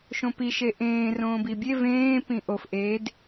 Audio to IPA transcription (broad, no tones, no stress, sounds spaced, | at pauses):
ʃ õ p i ʃ e ʔ ẽː r õː b i bʲ e v ẽː p ĩ ʔ o f ʔ e d